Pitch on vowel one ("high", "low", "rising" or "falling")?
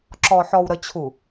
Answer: low